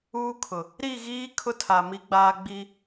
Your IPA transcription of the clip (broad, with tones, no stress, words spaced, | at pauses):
uː˦kʰʊ˨ | ɾi˦˨ɣiː˦ kʰʊ˦tʰa˨ mi˦ɡ͡baː˦ ɡ͡bi˦